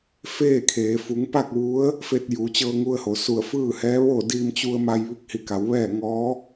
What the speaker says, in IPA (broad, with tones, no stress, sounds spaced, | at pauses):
f eː˥˨ kʰ eː˩˧ f u˩˧ ŋ p a˥˨ k̚ ʋ u˧˥ ə̯ | f e˧ t̚ j uː˩˧ t͡ɕ ɤː˧ ŋ u˧ ə̯ h o˩ s u˧˩ ə̯ f ɯː˥˨ h ɛː˧˥ ʋ oː˥˨ d iː˧ m t͡ɕ u˧ ə̯ m a˧ j ʋ i˧˥ k̚ h i˧˩ k a˩˧ w ʋ ɛː˥˨ ŋ ɔː˧˥